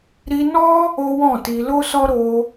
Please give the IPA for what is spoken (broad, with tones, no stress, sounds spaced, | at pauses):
ɾ i˧ n ɔ˦ | o˦ w ɔ̃˦˨ t i˧ l o˦ s ɔ˦ ɾ o˧